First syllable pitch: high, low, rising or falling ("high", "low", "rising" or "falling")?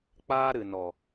high